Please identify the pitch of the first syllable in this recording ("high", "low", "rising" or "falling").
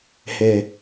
low